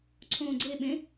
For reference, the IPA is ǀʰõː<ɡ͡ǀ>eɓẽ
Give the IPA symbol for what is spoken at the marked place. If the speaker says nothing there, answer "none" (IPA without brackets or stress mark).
ɡ͡ǀ